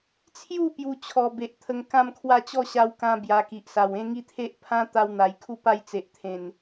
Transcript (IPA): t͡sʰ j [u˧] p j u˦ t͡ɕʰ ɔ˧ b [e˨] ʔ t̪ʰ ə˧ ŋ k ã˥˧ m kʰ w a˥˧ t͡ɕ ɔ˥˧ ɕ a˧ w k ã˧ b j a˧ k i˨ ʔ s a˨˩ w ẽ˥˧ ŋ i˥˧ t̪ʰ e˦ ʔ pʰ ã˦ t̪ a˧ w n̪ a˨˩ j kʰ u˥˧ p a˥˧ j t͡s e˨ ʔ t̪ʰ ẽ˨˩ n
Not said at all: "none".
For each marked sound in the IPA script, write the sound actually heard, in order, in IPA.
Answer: u˥˧, e˨

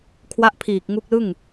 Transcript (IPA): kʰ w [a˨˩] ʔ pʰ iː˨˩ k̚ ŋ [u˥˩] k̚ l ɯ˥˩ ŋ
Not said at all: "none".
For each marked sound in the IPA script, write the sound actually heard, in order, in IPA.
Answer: a˥˩, u˦˥

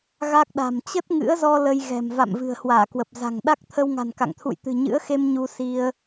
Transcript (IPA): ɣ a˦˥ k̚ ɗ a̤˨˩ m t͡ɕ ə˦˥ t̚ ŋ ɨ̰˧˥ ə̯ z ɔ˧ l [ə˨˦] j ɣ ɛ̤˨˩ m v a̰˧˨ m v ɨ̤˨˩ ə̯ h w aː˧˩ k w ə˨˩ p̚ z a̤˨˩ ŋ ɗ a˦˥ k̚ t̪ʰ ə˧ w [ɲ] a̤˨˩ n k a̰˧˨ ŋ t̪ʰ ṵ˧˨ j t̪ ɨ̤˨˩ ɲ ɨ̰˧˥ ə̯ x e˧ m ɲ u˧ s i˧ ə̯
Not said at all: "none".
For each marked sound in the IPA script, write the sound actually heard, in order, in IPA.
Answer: ə˧, ŋ

